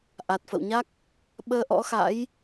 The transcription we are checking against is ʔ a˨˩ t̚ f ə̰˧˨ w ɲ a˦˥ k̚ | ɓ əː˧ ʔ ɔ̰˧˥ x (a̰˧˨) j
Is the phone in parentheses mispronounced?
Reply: yes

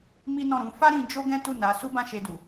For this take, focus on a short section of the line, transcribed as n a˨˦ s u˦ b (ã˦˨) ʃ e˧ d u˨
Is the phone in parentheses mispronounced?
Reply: no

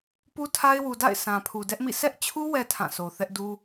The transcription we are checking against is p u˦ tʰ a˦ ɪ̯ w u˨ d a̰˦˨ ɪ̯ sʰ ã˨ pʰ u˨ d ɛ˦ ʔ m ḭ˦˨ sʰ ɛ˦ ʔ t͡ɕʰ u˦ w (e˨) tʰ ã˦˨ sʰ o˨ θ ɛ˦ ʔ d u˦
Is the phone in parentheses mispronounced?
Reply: yes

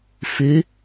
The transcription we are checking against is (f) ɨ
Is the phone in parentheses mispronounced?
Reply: no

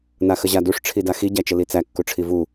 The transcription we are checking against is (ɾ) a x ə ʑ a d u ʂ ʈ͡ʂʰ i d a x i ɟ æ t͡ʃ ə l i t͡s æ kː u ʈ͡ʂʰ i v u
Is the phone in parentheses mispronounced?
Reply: yes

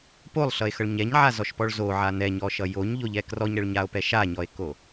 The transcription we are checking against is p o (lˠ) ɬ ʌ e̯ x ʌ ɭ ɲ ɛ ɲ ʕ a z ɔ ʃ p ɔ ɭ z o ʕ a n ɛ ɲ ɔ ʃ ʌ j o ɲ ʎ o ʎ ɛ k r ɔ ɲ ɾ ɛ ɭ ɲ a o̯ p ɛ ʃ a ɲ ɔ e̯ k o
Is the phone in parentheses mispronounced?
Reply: no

